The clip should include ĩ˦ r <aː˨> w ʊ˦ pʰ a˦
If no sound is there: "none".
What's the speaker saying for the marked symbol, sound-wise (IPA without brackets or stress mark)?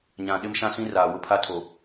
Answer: aː˨